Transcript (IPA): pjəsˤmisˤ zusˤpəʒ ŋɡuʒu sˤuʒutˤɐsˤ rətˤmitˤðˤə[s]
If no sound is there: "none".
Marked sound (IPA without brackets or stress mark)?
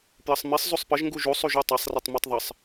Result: sˤ